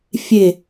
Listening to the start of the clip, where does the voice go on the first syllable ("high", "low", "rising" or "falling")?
falling